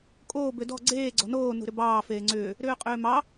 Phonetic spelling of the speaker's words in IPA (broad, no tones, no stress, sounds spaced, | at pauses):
kʼ oː b ʏ d ɔ̤ ɡ͡ǀ eː ɡ͡ǀ ɔ̤ n oː n ṳ ɾ ʏ b ɑː f eː ŋ͡ǀ ʏː | ɾ ʏː qʼ ʏː m ɑ